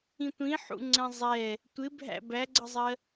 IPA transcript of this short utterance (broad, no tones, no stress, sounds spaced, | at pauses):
ĩ tʷ ĩ ħ ṵ ŋ͡ǀ ɛ̃ zˤ ɛ | tʷ ɪ bʱ æ̰ b æ ɡ͡ǀ ʌ zˤ ɜ